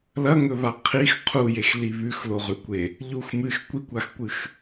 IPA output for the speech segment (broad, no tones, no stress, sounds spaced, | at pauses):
l ɐ ŋ ɵ β a qʰ i x qʰ u j e x l i β ʉ x l o ʁ ʉ kʷ e | ʎ u x m ɨ x kʷ i kʷ a x kʷ ɨ x